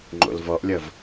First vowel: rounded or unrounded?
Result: rounded